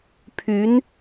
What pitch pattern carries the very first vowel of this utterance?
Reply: rising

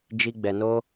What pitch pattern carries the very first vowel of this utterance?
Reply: high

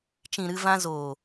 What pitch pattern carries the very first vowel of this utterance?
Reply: low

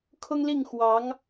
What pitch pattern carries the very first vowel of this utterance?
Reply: high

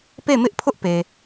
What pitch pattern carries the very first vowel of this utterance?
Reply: falling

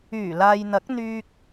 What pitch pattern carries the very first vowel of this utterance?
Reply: low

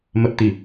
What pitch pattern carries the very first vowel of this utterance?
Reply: low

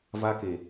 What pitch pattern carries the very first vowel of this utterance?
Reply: high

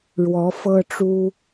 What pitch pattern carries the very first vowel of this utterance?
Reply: rising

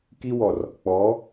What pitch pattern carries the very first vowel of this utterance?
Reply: high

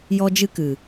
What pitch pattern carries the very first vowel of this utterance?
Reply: high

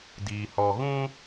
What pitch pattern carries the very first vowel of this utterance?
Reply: low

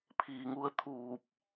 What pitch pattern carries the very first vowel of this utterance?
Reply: low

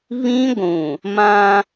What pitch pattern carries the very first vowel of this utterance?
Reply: high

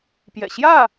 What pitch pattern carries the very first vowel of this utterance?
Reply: low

